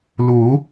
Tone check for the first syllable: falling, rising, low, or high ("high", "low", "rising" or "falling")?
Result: rising